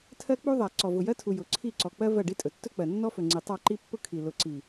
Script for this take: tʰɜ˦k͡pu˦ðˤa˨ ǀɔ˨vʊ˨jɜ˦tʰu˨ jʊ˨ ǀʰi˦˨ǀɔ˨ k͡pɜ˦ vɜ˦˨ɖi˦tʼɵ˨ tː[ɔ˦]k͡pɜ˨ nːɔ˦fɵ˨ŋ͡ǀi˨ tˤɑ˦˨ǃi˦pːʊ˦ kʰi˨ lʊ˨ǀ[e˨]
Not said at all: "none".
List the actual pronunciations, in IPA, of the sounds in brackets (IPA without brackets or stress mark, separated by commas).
ɵ˦, i˨